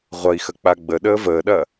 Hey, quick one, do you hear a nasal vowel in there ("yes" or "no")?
no